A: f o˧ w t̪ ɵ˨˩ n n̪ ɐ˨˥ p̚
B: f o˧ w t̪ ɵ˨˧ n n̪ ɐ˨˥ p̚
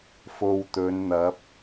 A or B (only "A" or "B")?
B